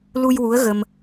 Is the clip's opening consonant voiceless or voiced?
voiced